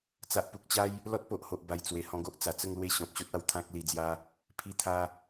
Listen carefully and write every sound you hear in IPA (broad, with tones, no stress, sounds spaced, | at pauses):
t͡s a˨ ʔ p u˨ k̚ t͡ɕ a˦ j | l ɔ˦ t̚ p o˨ ʔ h o˨ ʔ b a˨˩ j t͡s w e˨˩ h ɔ̃˧ ɡ o˦ ʔ t͡s a˨˩ t͡s ə˥˧ ŋ l w e˥˧ ɕ ɔ̃˨ p̚ ɕ o˦ t̚ a˧ w t̪ʰ ã˦ k̚ l i˧ d͡z j a˦ | pʰ i˧ t̪ʰ a˧